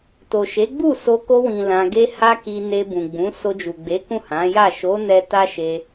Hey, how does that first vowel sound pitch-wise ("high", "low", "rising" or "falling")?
low